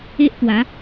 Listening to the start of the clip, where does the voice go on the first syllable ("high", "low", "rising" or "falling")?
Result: high